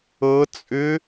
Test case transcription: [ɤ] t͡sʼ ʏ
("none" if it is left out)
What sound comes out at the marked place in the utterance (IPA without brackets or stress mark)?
ɤ